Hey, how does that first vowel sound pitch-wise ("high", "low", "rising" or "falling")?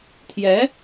rising